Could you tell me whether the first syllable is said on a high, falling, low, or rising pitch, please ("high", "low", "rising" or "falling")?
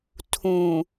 low